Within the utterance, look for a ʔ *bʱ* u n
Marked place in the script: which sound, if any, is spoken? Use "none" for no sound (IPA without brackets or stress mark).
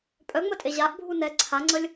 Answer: bʱ